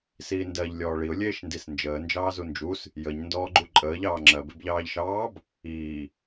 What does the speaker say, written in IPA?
siːndɜʎ lʲɔːɭiʊ̯ lʲeːʃndisnd͡ʒəː nd͡ʒɑːzund͡ʒus | jəɲ ndɔːɡ͡ǃuǃʼəːʎ ɑːŋ͡ǁɜb ebʎɑːʎʃɑːb | iː

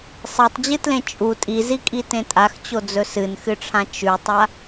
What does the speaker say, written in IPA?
sˤetˤd͡ʑɨtlẽ t͡ʃʼu tʼizikʼitẽ tʼaxt͡ɕod͡zɵ sɨnxɨʈ͡ʂʰã t͡ʃʉtˤa

